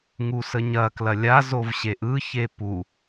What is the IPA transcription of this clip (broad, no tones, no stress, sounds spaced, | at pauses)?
ŋ u s ə ɲ ɐ k l ɐ lʲ a z o v ɕ e ʔ ɯ ç e p u